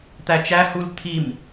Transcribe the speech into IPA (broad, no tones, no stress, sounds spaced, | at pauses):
t̪ æ t͡ʃ æ h u l t̪ʰ i m